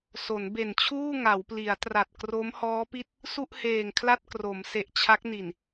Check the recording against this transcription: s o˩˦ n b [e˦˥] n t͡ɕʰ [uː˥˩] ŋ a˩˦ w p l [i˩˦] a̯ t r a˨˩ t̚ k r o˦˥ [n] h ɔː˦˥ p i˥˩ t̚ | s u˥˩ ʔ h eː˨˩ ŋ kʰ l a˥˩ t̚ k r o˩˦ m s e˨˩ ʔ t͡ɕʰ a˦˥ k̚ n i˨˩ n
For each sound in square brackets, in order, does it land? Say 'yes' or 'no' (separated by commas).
no, yes, yes, no